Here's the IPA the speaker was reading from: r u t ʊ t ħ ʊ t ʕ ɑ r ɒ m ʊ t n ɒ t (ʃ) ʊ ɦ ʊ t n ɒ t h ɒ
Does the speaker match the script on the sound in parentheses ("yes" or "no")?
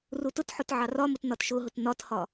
yes